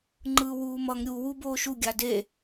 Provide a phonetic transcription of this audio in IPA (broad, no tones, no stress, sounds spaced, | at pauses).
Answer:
ŋ͡ǃ ɯː w uː m ʌ ŋ ɾʲ u w u b oː ʃ u ɡʲ a d e